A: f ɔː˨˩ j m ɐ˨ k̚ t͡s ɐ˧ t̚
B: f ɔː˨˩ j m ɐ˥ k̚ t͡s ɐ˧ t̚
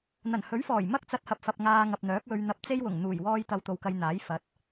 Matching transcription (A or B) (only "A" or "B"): B